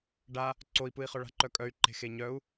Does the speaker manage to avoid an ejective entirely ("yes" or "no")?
no